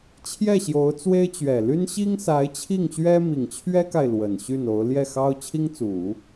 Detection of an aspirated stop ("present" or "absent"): present